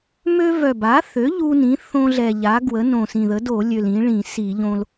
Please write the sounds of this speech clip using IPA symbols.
m ø˦ v œ˨˩ b a˩˥ θ ø˩˥ ʎ u˦ n ĩ˩˥ θ õ˦ ɮ ɛ˨˩ ʎ a˩˥ ɡ w ə˩˥ n õ˨˩ s ĩ˨˩ ð ə˩˥ d o˧˩˧ lʲ ø˨˩ l ĩ˩˥ ɭ ĩ˧˩˧ s i˧˩˧ ʎ õ˦ l

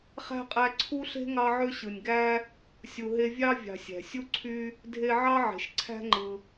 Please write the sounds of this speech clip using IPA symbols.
χ æ̤˥ qʼ æ˦ ǀʰ u˥ ɬ e̤˥ ŋ ɑ˦ ʕ ø˦ ɕ ɯ˩ nʲ ɡ æ˥ | sʲ u˨ ɦ e˦ vʲ ɑ˥ vʲ ɑ̤˨ sʲ æ̤˩ sʲ u˥ ǀʰ y˦ | dʱ e˦ ʕ ɑ˥ ʕ e̤˩ ʃ ǀʰ æ̤˦ ŋ͡ǃ ɯ˩

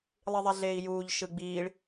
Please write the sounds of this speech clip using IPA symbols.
lˠ i ðˤ ɛ ɮ eː i̯ j uː ʎ ʃ ɯ ɡ͡b iː ɭ

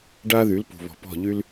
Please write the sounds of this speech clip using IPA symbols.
ɖ a˦ ð y˨˦ l p ṳ˨ β ɔ̤˨ p ɔ̤˦˨ ʎ y˦ l

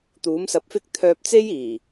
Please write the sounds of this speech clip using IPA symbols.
t̪ uː˨˥ m s ɐ˧ p̚ f ɪ˥ k̚ t̪ʰ œː˧ p̚ t͡s e˥ j iː˨˩

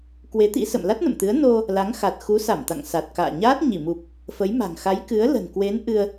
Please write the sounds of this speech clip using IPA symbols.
k w e˨˦ t̪ ḭ˧˥ s ə̰˧˨ m l a˦˥ t̚ n ə̰˧˨ m t̪ ɨ˨˦ ə̯ n o˧ | l a˨˦ ŋ x a˨˩ t̚ x u˨˦ s a˧˩ m t̪ a̰˧˨ ŋ s a˨˩ t̚ k a̰ː˧˨ ɲ aː˦˥ t̚ ɲ i˧˩ m u˨˩ p̚ | f ə˨˦ j m a̤˨˩ ŋ x a˨˦ j k ɨ˨˦ ə̯ l ə̤˨˩ n k w e˨˦ n ʔ ɨ˧ ə̯

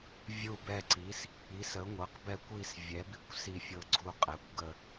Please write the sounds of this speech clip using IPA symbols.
vʲ u˦˨ b ɛ˦˨ ǀ i˩˥ s | i˩˥ s ə˩˥ ŋʷ ɤ˩˥ q b ɛ˦˨ kʷ i˦˨ s vʲ ɛ˩˥ b i˦˨ kʷ s i˦˨ fʲ ɤ˦˨ ɡ͡ǀ u˦˨ qʼ ɛ˩˥ kʷ ɡ ə˦˨

